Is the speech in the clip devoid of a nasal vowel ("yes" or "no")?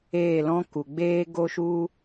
no